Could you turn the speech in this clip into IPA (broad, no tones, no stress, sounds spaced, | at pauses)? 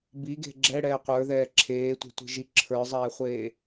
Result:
b i ɡ e̤ ɡ͡ǁ ɛ ɽ ɛː qʷ ə˞ ð ɛː ǁʰ eː tʷ e̤ tʷ i̤ ʒ i ǁʰ ə˞ zˤ ɛː χʷ eː